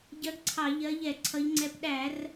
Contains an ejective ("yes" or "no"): no